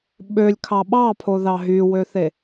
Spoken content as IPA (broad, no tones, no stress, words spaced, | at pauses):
ɓølʲkʰɑ ɓɑpʰoðɑ ɦywøθe